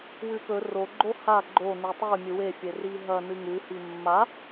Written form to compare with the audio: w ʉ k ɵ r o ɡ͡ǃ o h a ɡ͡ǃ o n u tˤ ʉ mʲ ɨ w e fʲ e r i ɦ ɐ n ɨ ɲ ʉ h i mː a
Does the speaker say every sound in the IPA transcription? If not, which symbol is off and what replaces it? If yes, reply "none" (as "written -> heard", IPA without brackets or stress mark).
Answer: ɲ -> ŋ